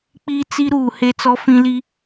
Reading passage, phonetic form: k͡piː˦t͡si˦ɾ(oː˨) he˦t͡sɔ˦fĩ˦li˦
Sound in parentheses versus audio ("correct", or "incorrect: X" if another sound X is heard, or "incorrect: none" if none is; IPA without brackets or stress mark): incorrect: uː˨